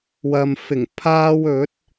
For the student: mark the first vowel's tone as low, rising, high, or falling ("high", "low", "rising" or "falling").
low